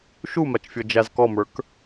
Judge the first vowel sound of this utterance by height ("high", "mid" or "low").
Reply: high